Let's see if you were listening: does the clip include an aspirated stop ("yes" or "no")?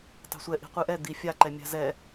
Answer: no